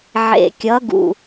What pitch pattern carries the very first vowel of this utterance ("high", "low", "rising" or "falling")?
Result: low